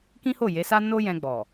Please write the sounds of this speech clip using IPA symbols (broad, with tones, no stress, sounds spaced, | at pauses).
k ĩ˦ h o˦˨ j e˨˦ s a˦ n o˦ j ɛ̃˧ ɡ͡b ɔ˨